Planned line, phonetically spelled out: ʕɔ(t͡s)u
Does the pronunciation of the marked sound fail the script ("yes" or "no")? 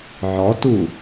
yes